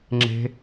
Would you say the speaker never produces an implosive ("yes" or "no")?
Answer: yes